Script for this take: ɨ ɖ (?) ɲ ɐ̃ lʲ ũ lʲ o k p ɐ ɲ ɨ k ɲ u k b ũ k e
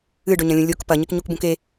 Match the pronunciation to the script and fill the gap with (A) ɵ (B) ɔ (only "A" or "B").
A